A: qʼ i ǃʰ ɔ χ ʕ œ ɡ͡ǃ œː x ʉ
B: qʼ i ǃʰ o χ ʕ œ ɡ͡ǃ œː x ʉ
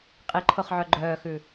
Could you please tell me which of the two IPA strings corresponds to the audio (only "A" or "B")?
B